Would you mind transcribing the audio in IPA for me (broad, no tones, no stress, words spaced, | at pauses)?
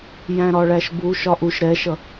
jæ̃ɾɒɭæʃbu ʃɒʔuʃ ɾɛʃʌ